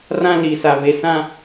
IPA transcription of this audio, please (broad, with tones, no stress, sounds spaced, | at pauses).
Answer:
r ã˦ l i˨ s a˨ β e˨ s ã˦